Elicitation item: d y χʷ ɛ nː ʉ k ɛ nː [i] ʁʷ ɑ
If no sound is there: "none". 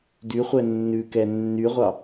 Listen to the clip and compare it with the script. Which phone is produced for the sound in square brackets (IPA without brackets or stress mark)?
y